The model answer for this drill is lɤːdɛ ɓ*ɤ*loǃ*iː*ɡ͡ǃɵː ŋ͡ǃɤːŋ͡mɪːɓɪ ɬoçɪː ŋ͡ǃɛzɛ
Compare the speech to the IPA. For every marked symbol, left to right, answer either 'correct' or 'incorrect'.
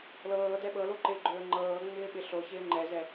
correct, incorrect: ɪː

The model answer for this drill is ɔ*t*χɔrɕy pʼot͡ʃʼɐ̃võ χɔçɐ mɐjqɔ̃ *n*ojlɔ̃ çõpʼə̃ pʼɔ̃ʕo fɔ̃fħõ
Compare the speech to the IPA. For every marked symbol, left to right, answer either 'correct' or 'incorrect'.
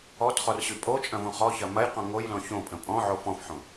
correct, incorrect: ŋ

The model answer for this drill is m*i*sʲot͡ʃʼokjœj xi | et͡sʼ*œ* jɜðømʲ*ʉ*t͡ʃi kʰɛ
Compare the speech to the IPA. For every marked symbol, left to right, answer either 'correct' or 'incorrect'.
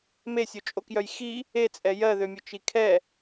incorrect: e, incorrect: ɛ, incorrect: ʊ

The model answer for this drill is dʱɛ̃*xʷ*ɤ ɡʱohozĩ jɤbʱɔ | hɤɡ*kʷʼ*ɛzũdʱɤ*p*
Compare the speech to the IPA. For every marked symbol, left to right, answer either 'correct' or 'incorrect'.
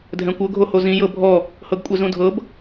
incorrect: kʷ, correct, incorrect: b

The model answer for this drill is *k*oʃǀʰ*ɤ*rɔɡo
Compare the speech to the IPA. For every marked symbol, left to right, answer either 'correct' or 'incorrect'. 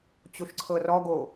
incorrect: t͡ɕ, correct

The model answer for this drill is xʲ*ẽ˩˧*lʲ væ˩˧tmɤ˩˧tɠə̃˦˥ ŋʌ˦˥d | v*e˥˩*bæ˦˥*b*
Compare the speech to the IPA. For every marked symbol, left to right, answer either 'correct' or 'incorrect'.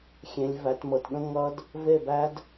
correct, correct, incorrect: d

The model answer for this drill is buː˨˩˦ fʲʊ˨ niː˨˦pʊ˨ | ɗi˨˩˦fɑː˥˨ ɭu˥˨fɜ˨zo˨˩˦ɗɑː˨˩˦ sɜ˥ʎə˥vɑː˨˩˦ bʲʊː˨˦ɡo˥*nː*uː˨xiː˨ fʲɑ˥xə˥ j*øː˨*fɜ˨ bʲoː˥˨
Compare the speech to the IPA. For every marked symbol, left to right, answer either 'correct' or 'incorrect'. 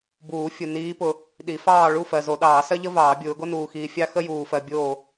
incorrect: n, incorrect: uː˨

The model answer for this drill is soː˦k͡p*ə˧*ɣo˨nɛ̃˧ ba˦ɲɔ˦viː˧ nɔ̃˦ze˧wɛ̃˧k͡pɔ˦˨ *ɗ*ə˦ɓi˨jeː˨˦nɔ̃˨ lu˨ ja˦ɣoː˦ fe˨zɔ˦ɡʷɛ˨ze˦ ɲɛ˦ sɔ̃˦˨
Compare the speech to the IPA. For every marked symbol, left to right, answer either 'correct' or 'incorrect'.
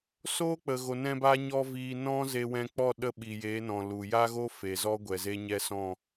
incorrect: ə˨, correct

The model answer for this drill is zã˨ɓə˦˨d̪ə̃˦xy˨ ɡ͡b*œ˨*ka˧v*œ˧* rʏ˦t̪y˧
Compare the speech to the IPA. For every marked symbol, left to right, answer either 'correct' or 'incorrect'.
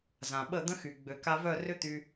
incorrect: ø˨, incorrect: œ˦˨

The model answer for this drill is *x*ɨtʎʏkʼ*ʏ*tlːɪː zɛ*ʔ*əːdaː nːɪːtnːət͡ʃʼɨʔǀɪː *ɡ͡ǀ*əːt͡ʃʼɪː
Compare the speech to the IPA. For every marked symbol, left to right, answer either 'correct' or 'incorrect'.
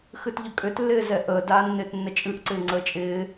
correct, correct, correct, incorrect: ŋ͡ǀ

